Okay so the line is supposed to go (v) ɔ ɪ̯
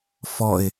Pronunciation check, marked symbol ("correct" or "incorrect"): incorrect